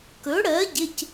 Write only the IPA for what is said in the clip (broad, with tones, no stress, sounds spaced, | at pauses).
k ɵ˩˥ ɽ ɜ˩˥ ɟ ɪ˩˧˩ c